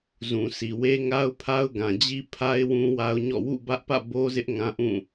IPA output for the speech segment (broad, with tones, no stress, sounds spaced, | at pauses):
z ũ˨ s i˨ w e˦ ŋ a˦ ʊ̯ pʰ a˦ ʊ̯ ɡ ã˨ d͡ʑ i˦ pʰ a˦ ɪ̯ w ũ˦ w a˦ ʊ̯ ɲ ɔ̰˦˨ w ṵ˦˨ b ä˦ ʔ p ä̰˦˨ b o˦ z ɪ˦ ʔ ŋ ã˦ ʔ ũ˦˨